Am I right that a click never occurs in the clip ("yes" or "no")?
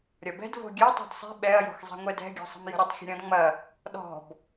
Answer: yes